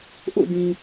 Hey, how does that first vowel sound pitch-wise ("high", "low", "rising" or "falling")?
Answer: falling